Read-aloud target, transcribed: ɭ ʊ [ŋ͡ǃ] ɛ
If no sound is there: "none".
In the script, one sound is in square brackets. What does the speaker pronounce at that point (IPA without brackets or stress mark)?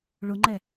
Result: ŋ͡ǃ